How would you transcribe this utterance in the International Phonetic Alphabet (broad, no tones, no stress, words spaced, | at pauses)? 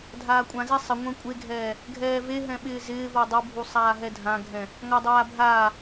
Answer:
dʱaːkʷʼãzɛ sˤə ŋʷɛ̃kʷʼeɡʱɛː | ɡʱɛːveɦɛ̃ ɓɪːzɪːvo dˤɪbʱu sˤaːɦɛdʱãɡʱɛ̃ | ŋadˤaː bʱaː